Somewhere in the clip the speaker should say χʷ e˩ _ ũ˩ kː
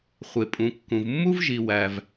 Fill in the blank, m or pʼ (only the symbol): pʼ